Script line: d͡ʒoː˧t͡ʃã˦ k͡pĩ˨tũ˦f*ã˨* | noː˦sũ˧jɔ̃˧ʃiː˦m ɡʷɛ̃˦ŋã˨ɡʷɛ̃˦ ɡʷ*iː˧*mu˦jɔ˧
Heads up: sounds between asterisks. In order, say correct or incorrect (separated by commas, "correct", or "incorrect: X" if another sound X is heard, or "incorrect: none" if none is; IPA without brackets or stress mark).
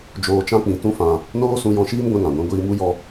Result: correct, correct